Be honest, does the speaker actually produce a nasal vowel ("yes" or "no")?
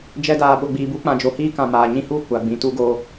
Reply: yes